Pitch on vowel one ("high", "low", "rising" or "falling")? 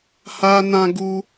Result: high